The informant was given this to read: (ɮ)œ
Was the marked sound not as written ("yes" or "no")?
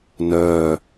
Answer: yes